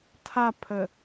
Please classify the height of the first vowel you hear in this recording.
low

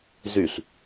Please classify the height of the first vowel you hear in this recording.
high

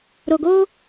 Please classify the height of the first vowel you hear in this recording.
mid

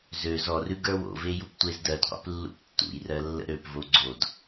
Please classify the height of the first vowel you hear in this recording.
mid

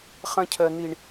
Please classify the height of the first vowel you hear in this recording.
low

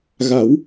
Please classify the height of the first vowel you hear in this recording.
low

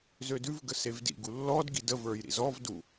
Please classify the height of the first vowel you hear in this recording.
mid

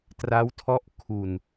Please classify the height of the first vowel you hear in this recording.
low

